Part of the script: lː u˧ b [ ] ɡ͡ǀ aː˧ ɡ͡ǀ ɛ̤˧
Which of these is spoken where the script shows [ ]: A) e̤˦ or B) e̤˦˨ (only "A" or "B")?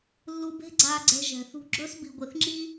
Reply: A